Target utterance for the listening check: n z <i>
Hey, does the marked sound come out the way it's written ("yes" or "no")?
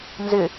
no